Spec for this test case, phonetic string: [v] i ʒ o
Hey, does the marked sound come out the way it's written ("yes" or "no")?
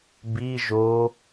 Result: no